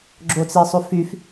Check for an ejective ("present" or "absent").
absent